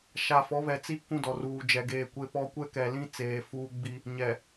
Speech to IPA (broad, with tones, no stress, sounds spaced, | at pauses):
ʃ a˨ f ɔ˨˦ β ɛ˨ t͡s i˦ k ũ˦ d ɔ˨ r uː˨ d͡ʒ ɛ˨ ɡ eː˦˨ kʷ e˦ p ɔ˦ kʷ ɛ˦ k ɛ˨ l ĩ˦ t͡s eː˨ f uː˦ ɡ͡b i˦ | ɲ ɛ˨